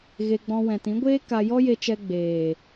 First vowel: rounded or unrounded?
unrounded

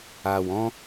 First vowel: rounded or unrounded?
unrounded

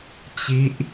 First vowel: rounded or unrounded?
unrounded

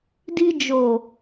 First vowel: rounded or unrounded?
unrounded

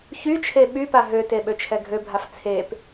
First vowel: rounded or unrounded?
rounded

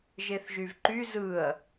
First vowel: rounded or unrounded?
unrounded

